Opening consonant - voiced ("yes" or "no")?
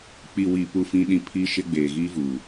no